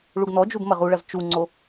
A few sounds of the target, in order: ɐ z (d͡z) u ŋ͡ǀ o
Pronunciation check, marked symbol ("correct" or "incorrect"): incorrect